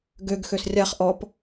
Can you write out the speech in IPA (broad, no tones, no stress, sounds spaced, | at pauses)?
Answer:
ɡ ø ɡ x ø s rʲ a χ ʔ ɔ p